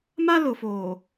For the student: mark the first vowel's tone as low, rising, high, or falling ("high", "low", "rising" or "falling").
high